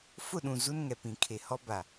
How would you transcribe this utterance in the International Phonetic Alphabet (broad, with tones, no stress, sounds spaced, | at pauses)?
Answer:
f ʊ˦˨ ɗ ũ˨ z u˦ n ŋ ɛ˨ p ĩ˨ kʰ e˨ h ɔ˦ b a˨